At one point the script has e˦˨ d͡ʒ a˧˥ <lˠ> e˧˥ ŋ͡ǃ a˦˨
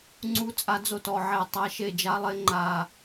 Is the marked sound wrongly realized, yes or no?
no